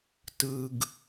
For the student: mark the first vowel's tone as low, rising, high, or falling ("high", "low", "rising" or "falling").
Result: low